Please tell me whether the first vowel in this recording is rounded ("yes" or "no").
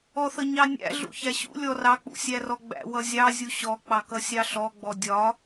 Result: yes